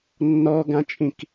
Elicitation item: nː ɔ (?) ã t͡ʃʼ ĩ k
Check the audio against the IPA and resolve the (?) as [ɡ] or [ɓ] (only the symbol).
ɡ